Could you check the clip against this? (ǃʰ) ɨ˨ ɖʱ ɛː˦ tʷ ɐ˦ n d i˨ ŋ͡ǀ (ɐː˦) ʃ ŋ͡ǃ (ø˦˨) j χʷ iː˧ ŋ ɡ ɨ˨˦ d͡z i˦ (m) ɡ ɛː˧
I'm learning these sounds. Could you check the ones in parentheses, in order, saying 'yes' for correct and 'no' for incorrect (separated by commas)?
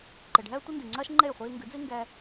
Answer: no, yes, no, no